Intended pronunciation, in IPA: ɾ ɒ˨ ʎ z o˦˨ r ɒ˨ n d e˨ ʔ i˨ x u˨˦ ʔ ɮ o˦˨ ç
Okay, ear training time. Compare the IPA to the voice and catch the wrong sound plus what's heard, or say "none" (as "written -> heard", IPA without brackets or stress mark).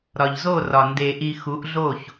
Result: none